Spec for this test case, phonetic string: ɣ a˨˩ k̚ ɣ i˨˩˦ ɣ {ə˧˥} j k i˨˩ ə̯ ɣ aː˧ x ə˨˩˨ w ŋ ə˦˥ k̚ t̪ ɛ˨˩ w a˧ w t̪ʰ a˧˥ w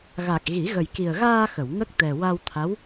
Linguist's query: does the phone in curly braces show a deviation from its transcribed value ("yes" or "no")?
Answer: yes